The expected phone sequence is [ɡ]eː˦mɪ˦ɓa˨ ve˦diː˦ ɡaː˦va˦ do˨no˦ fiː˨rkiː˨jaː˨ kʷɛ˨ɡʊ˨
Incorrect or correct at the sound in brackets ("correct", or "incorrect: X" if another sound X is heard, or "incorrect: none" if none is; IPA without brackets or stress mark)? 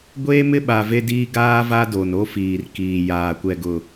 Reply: incorrect: ɡʷ